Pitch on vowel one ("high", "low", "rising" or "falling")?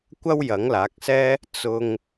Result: high